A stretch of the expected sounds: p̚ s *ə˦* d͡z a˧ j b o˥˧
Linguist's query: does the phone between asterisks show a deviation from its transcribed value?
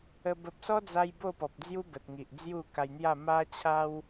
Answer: yes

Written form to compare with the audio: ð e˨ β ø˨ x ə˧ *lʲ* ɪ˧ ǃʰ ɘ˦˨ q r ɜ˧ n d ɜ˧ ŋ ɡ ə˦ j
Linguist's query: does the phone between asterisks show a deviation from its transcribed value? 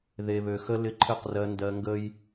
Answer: yes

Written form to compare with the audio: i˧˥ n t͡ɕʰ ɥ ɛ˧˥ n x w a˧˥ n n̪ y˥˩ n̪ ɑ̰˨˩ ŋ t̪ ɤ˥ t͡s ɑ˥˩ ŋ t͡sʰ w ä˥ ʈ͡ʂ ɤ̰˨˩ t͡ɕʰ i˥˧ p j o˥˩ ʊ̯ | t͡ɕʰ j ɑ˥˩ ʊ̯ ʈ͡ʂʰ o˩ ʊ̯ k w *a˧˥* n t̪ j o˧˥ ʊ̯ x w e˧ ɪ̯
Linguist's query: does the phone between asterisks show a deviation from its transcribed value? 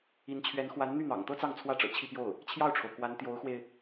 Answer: no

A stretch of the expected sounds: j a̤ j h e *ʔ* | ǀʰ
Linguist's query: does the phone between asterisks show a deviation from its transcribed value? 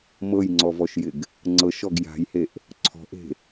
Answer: no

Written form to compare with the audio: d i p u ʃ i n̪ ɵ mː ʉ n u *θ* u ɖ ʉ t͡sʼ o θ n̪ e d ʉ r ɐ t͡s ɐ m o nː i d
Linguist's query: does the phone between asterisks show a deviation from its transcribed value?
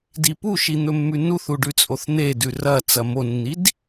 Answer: no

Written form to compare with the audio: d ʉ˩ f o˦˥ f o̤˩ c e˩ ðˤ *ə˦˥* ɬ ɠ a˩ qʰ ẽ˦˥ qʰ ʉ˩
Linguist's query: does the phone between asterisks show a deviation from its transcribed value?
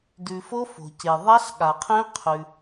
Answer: yes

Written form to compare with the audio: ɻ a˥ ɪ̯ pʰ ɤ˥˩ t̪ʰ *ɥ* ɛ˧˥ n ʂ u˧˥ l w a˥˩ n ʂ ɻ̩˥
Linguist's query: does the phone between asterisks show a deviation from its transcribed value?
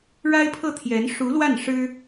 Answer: yes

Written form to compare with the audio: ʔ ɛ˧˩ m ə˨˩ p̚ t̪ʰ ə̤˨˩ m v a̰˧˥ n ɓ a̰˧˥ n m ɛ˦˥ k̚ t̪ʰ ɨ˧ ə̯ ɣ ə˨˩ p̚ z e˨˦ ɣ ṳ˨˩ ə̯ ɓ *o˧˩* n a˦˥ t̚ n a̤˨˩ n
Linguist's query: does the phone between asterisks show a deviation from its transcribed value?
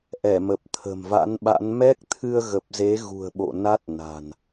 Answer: yes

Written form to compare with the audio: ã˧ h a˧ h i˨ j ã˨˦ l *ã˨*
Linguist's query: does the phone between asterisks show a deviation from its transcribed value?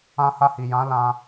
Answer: yes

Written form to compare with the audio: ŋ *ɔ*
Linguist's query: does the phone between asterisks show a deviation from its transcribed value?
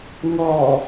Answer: no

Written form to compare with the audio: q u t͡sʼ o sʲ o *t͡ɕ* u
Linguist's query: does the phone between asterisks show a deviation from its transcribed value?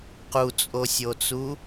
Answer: yes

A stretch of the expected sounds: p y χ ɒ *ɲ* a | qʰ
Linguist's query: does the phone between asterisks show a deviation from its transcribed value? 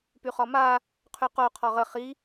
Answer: yes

